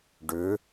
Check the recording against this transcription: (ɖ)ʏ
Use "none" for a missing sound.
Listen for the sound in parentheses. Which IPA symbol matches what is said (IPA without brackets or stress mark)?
ɖ